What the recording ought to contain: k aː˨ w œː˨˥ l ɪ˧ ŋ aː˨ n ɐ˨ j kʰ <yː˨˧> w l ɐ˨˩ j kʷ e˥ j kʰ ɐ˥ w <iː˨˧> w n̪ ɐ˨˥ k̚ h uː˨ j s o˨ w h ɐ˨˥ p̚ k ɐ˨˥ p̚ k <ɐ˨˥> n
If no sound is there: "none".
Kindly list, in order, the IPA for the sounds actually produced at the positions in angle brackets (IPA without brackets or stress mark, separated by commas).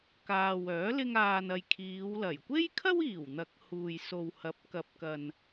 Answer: iː˨˧, iː˨˩, ɐ˨